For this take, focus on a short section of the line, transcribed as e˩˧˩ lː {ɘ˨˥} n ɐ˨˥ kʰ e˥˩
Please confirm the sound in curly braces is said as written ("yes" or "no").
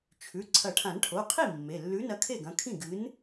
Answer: no